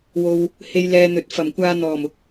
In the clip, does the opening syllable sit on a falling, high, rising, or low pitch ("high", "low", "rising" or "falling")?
low